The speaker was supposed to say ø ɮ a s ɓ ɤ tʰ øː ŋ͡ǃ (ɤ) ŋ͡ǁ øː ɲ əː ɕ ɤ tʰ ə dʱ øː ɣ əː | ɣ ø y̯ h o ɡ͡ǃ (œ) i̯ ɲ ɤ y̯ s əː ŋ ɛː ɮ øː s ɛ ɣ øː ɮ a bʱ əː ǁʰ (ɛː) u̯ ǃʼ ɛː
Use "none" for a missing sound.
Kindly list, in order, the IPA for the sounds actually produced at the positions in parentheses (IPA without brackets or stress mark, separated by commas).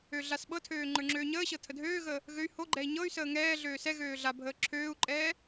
ə˞, ɛ, øː